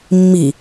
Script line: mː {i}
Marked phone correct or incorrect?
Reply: correct